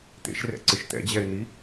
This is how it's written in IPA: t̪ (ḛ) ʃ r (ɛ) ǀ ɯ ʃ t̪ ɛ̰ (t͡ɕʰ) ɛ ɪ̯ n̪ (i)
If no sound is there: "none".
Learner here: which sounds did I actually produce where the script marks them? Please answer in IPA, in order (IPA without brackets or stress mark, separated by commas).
ḛ, ɛ̰, d͡ʑ, i